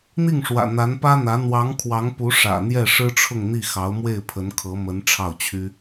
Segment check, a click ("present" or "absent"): absent